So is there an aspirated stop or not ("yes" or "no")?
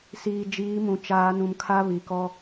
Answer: yes